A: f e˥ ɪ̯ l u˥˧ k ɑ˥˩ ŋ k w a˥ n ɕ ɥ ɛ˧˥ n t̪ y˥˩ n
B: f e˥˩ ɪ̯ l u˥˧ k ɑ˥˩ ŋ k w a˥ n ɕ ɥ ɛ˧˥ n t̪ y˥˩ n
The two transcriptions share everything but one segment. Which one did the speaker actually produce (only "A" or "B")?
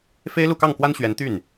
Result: A